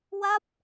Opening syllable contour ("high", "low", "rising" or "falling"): falling